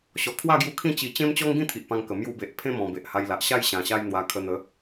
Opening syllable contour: low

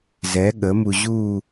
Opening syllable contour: rising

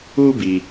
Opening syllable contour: high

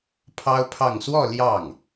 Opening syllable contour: high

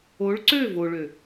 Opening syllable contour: rising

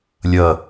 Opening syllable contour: falling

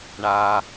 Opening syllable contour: low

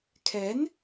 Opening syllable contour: rising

